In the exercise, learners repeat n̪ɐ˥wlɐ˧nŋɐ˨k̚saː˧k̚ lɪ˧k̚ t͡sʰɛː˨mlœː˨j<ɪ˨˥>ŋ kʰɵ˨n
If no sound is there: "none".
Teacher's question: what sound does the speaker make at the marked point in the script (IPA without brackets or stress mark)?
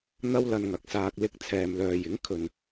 ɪ˨˥